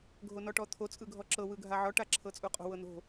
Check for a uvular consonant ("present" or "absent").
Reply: present